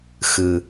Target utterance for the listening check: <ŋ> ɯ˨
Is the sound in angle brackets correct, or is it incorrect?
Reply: incorrect